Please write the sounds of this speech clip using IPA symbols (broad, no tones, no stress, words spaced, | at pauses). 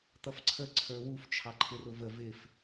t̪ʌfǀʰə ǀʰə˞wuf t͡ʃʰɑǃʰɪrʊvə vɪf